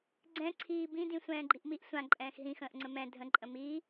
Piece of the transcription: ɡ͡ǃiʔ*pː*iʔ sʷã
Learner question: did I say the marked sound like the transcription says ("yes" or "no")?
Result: no